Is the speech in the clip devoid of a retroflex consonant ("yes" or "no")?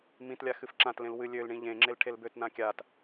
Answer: no